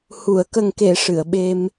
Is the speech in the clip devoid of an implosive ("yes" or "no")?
no